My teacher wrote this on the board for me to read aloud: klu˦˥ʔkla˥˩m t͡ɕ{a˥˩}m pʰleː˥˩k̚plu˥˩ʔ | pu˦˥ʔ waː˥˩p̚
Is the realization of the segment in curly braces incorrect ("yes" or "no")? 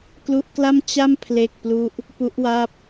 no